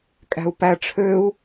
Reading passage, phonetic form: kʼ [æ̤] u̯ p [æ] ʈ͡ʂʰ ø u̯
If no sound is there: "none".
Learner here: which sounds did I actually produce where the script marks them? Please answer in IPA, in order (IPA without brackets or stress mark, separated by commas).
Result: æ̤, æ